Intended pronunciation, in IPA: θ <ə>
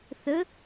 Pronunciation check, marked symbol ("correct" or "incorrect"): correct